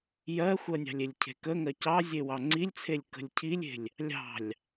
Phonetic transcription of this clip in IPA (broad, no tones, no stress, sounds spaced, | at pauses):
j ɜ xʷ ɜ nʲ ɑ̤ lʲ e lʲ cʰ e̤ k ə ŋ ɜ c ɑ zʲ e w ɑ ŋ͡ǀ i lʲ t͡sʰ e lʲ k ə̤ lʲ cʰ i lʲ e̤ lʲ | lʲ ɑ̤ lʲ